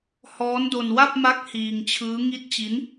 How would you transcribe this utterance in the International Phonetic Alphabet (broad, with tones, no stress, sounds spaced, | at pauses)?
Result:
h ɔː˦˥ n d o˧ n w a˥˩ p̚ m a˦˥ k̚ h iː˧ ŋ t͡ɕʰ ɯː˦˥ ŋ i˦˥ t̚ t͡ɕ i˦˥ n